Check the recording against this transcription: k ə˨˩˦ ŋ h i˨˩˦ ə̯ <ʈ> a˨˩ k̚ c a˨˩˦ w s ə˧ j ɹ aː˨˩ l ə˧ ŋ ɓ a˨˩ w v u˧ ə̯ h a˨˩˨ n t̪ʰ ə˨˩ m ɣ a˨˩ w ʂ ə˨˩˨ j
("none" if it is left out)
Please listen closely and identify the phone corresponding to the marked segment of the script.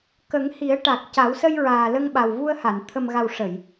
ʈ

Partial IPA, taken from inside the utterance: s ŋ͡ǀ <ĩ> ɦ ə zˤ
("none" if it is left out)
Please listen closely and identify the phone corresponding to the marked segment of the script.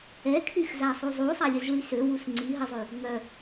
i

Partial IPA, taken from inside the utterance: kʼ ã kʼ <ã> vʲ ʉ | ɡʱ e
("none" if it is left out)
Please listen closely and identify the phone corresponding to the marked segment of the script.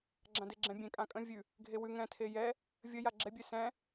ə̃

